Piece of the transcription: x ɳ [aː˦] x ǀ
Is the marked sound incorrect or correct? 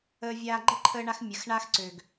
correct